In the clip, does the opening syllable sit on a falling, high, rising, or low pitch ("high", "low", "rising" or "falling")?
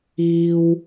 high